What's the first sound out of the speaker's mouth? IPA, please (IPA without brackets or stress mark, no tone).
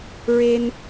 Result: ɹ